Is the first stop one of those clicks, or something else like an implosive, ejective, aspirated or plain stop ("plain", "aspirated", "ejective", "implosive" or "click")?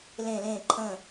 click